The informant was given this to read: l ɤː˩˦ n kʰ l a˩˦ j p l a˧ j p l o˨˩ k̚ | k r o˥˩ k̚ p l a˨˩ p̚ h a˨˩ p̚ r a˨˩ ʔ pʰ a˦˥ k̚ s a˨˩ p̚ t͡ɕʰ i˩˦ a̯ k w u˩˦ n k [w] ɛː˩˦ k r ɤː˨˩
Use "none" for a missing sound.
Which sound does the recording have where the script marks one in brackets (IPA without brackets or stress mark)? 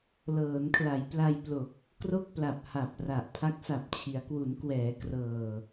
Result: w